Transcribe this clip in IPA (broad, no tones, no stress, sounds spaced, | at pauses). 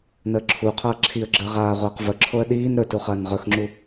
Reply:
n əː ǁʰ u qʰ ɐː ǁʰ i ə̯ ɡ͡ǁ əː ʁ aː ʁʷ əː q v ə ǁʰ o ə̯ ɗ iː n ɾ ɵ t u χ ɐː n ʁ ɵ x ŋ͡ǁ u